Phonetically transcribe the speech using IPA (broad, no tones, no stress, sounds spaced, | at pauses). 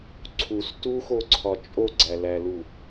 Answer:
ǀʰ u s t u x o ǀʰ ɒ t͡ʃʼ o ɡ͡ǀ æ l æ l u